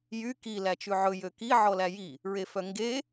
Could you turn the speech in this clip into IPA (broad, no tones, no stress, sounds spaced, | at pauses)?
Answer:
j y k i l æ t͡ʃ ʉ ʕ ɵ j ø k i ʕ ɔ l æ j i | ɹ e f œ ŋ ɡ e